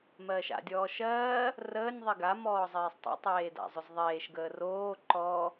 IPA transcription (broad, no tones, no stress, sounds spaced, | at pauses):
m ɜː ʃ a̰ dʲ ɔː ʃ ɜː | r əː nʲ ðˤ i ɡ a m ɔː zˤ eː sˤ tˤ ḛ tˤ eː d a̰ zˤ ʏ z ðˤ eː ʃ ɡ əː r oː ǃ ɔ